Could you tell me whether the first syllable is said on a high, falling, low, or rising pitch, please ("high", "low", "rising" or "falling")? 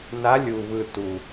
rising